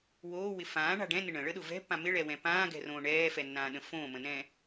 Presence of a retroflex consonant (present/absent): present